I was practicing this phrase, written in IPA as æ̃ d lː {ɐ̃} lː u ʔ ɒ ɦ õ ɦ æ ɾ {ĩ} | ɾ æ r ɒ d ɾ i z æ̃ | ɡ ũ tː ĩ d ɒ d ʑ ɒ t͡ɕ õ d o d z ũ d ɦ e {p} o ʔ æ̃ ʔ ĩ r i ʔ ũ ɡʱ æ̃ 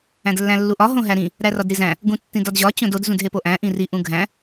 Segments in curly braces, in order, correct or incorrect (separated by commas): incorrect, correct, correct